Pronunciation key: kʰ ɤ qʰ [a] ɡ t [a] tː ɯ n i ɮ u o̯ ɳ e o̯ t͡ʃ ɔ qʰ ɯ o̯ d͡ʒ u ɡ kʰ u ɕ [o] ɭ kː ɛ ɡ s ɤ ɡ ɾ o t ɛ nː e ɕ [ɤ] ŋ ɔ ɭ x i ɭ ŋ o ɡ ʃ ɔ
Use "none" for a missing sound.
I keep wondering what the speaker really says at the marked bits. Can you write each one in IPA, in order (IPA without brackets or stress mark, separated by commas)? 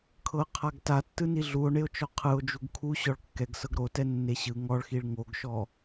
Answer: a, a, ɔ, ɯ